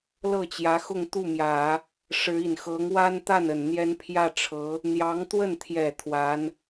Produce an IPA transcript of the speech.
l ɤ˥˩ t͡ɕ j ä˧˥ x ʊ˥˧ ŋ t̪ u˥˩ m j ä˨˩˦ | ʂ ɻ̩˧˥ i˨˩ n x ɤ˧˥ ŋ w a˥ n t̪ a˥˩ n ə˨˩ n n̪ j ɛ˥ n pʰ j ä˥˩ ʈ͡ʂʰ ɤ˧˥ | n̪ j ɑ˧˥ ŋ t̪ w ə˥˩ n t̪ʰ j ɛ˨˩ t̪ʰ w a˧˥ n

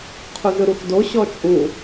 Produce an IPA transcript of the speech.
qʰ u z ɯ ɾ u x d o ɕ ɔ t͡ʃʼ u

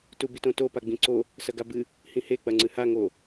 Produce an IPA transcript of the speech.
t u b i t õ t o p a ɡ͡b ĩ ǀ o | s ɐ ɡ a b ɨ | h ĩ h e k͡p ɐ ŋ͡ǀ ɨ h a ŋ o

